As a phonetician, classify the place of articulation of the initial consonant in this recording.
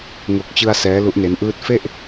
velar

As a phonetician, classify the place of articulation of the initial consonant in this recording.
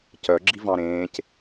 palatal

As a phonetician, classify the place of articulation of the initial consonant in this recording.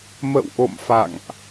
labial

